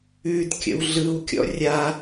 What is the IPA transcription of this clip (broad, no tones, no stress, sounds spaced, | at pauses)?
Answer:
ʉ d kʲ ə̰ w ɮ ɯ w kʲ ɔ̰ rʲ a